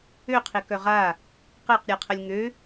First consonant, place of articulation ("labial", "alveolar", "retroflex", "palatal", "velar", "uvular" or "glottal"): uvular